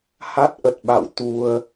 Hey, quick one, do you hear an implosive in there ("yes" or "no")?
yes